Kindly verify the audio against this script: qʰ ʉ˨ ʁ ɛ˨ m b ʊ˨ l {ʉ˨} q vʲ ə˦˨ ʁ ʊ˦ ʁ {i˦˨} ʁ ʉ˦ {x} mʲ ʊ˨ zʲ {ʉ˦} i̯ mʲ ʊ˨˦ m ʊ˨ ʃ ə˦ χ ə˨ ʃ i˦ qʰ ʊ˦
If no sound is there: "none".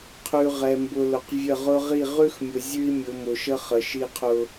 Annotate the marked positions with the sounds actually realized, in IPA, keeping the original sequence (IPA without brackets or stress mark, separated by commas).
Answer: ʊ˨, i˦˨, x, ʉ˦